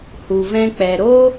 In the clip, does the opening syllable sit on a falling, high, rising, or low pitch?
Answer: low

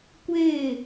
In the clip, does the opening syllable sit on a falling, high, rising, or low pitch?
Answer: falling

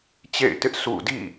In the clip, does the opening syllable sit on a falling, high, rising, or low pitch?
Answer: falling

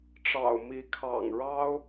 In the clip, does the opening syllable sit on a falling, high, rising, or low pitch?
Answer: low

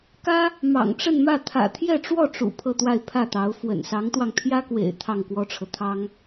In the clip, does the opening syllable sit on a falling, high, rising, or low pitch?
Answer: high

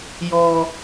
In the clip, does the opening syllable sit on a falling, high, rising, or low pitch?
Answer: high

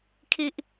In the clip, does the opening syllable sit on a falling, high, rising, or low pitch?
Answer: low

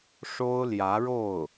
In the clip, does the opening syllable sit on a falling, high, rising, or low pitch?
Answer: high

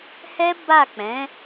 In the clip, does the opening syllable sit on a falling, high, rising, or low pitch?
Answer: high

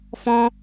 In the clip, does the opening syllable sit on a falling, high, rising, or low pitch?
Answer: high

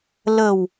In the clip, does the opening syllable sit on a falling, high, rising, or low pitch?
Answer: low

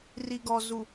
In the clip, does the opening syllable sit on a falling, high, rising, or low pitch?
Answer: low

